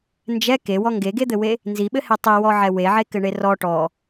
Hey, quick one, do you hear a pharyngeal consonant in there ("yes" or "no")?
yes